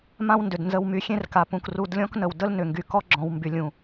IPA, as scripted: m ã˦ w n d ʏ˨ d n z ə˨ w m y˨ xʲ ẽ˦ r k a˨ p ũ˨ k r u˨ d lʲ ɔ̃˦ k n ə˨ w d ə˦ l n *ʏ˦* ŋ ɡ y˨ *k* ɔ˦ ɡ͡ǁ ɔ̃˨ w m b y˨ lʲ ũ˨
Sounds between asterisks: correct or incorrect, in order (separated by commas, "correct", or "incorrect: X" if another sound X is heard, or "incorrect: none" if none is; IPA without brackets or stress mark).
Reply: incorrect: ʏ˨, correct